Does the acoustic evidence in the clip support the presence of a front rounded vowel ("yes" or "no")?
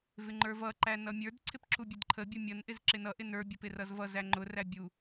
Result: no